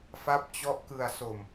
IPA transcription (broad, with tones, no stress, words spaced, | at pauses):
fa˦˥p̚t͡ɕɔ˦˥ʔ kɯ˧a̯so˧m